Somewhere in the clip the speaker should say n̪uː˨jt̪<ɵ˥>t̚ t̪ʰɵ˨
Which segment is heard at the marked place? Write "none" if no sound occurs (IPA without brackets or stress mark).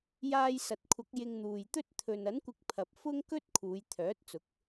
ɵ˥